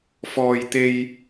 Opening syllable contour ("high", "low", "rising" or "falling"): high